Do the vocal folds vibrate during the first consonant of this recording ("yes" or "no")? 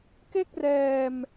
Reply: no